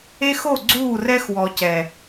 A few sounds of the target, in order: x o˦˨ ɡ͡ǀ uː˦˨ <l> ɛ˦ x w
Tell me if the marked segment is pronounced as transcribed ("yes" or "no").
no